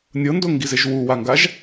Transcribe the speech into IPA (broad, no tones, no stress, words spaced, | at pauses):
nʲɤndoŋɡizeʒ wuwaŋɡaʒ